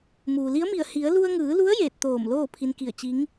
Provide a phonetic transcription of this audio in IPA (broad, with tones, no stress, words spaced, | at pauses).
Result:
muː˩li˧˥ə̯mi˧˩ə̯ hi˩˧ə̯ lu˧ə̯ŋɯː˩˧lu˧˥ə̯ jeː˧˩t̚t̪oː˧˩m loː˥˨ pʰi˧nki˧˩ə̯ t͡ɕi˧˥ŋ